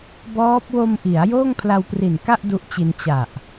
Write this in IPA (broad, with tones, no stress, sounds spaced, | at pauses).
b ɔː˦˥ p̚ w o˧ m ʔ i˩˦ a̯ j oː˥˩ ŋ pʰ l a˧ w p r i˨˩ n k a˥˩ ʔ d u˦˥ ʔ t͡ɕ i˧ n t͡ɕ a˨˩ ʔ